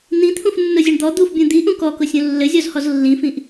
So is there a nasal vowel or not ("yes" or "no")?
yes